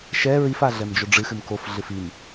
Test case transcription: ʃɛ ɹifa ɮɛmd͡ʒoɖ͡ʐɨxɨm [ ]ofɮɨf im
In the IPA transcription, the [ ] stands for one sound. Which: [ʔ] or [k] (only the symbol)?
k